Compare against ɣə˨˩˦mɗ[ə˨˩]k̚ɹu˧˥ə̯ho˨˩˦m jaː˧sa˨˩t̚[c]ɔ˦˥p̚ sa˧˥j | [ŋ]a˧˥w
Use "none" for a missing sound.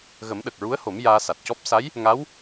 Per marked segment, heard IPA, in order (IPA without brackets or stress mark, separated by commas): ə˨˩, c, ŋ